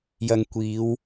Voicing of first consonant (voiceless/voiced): voiced